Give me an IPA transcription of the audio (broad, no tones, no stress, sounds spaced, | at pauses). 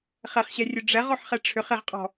χ ɛ χ ɕ ɛ rʲ ɵ ɖ͡ʐ ɛ ʁ ɔ ħ χ ɛ ʈ͡ʂʰ ʏ χ e ʁ qʼ ɔ̤